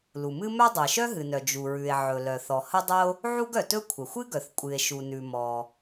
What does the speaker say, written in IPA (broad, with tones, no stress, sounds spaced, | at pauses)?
l u˩ m ɨ˥ m œ˥ dˤ ɵ˩ e̯ ʃ œ˥ ɦ ɨ˩ n œ˩ d͡ʒ u˩ ɹ ʉ˩ e̯ ʕ ɵ˩ l œ˩ θ ɔ˩ h ə˥ dˤ ə˥ o̯ | ʕ u˥ ɡ œ˩ t ɵ˥ kʷʰ ə˩ xʷ ɨ˥ ɡ œ˩ θ kʷʼ ɨ˩ e̯ ʃ u˩ n ʉ˩ m ɔ˩